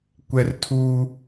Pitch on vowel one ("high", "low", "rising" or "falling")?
high